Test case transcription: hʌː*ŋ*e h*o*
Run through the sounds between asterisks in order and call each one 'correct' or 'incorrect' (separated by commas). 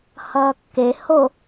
incorrect, correct